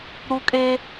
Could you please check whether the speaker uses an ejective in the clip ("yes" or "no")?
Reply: yes